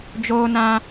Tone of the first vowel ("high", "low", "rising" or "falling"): high